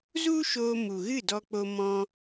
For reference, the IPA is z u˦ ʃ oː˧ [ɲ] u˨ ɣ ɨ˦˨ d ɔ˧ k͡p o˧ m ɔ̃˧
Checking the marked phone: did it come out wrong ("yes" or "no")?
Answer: yes